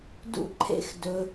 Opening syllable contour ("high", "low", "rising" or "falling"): high